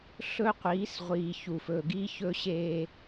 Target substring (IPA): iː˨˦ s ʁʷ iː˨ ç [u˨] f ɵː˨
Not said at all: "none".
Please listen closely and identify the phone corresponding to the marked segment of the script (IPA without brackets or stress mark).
u˨